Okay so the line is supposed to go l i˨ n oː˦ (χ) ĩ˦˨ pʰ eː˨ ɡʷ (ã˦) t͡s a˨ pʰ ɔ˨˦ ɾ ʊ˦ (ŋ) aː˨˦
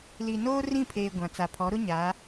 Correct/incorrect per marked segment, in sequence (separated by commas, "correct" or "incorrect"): incorrect, incorrect, incorrect